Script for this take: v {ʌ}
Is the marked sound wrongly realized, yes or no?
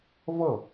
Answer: no